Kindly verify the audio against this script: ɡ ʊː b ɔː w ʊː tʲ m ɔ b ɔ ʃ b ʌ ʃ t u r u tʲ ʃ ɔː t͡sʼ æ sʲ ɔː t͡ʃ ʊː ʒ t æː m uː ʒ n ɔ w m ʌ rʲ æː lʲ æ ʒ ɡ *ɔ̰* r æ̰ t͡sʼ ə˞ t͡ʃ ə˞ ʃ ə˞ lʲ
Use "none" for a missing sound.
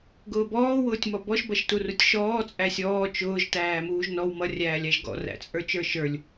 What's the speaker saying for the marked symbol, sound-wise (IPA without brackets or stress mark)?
ɔ̰